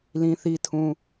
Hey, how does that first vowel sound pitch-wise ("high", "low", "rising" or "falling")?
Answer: high